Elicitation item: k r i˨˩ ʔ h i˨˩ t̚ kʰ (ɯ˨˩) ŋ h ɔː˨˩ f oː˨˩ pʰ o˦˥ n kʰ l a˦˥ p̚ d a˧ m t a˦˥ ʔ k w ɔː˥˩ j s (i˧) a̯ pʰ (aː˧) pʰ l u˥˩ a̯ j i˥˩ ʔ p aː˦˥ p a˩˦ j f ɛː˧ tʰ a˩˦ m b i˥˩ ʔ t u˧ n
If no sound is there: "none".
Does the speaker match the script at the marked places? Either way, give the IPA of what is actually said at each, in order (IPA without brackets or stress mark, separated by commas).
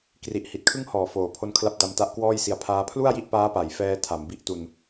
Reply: ɯ˥˩, i˧, aː˦˥